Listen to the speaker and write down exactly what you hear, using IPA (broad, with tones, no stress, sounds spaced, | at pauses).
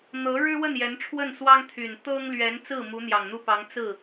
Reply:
n̪ ɤ˧˥ ɻ ɻ̩˥ w ə˥˩ n j ɛ˧˥ n ʈ͡ʂʰ w ə˥˩ n s w ɑ˥ ŋ t̪ʰ y˨˩ n t̪ ɤ˥ ŋ l ɥ ɛ˧˥ n t͡s ɹ̩˥˩ m u˧˥ n̪ j ɑ˨˩ ŋ n̪ u˥˩ p ɑ˧˥ ŋ t͡s ɹ̩˥˩